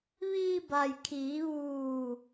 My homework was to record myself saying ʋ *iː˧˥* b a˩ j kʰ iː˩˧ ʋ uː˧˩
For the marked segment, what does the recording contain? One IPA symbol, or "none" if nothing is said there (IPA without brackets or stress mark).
iː˧